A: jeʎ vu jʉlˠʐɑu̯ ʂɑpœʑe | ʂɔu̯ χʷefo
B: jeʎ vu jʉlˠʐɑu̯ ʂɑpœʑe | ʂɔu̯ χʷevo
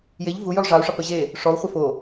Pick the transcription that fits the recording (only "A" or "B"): A